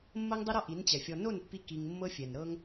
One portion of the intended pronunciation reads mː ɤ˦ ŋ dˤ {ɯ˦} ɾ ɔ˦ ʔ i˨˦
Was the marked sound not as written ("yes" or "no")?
no